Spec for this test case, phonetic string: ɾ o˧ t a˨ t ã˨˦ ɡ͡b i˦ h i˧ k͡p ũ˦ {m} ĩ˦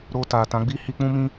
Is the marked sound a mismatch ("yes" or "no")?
no